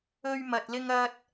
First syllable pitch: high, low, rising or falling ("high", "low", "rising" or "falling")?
high